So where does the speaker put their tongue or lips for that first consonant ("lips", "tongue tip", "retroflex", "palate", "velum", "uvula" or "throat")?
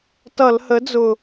tongue tip